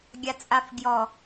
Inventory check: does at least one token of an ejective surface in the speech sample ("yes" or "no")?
yes